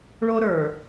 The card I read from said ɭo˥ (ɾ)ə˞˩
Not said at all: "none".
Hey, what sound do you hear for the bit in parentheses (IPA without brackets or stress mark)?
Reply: ɾ